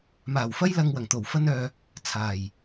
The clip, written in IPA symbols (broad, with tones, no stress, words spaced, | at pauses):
maː˨˩wfɐ˧jlɐ˨ŋ wɐ˨˩ŋt̪o˨˩wfɐ˧nœː˨ | t͡sʰaː˨˩j